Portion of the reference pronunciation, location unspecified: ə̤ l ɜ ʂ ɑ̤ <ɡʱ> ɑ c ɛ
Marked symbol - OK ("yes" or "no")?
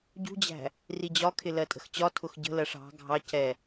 yes